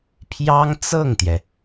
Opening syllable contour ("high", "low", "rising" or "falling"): high